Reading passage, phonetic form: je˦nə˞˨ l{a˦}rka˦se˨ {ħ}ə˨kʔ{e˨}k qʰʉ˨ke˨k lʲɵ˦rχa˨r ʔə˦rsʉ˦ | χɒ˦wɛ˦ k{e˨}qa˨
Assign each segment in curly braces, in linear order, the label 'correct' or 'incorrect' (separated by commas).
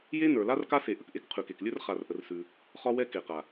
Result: correct, incorrect, incorrect, correct